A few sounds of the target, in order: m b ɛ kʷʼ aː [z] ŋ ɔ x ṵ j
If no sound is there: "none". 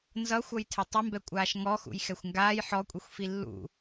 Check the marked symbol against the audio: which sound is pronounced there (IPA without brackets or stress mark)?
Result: ʃ